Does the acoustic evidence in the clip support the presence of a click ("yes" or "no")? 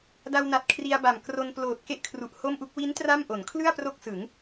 no